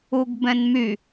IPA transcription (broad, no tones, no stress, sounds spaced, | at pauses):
u ɡ b ɛ̃ n m y